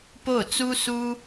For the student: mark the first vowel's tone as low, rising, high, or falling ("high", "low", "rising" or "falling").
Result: falling